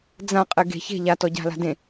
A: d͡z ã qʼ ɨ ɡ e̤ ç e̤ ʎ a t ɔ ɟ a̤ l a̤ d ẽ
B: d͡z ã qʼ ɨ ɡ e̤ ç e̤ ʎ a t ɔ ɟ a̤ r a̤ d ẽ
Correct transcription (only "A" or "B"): A